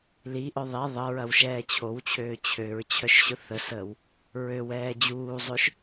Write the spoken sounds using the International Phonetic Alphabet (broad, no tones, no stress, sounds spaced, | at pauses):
l i ʔ œ ðˤ i ðˤ ə ɹ ɐ w ʃ ɛː t͡ɕʰ o w t͡ɕʰ øː t͡ɕʰ ø ɹ t͡ɕʰ œ ʃ ɕ ʊ θ ə s əː w | ɹ ø w ɛː d͡ʑ uː zˤ ø ʃ